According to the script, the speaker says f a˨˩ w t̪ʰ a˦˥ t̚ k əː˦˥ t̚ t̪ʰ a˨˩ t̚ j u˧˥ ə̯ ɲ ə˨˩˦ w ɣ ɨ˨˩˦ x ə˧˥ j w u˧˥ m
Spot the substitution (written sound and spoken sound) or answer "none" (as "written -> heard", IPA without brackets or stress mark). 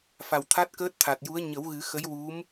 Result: none